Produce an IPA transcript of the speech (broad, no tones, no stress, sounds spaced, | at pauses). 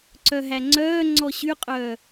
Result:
ǀ œ ɦ æ ŋ͡ǀ œː ŋ͡ǀ ɔ ɕ y qʼ œ